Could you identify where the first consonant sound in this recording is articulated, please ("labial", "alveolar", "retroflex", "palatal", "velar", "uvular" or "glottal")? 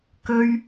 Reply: velar